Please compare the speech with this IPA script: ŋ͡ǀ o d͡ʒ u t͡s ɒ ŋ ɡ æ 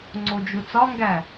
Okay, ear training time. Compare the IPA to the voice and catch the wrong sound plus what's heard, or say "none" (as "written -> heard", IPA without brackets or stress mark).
none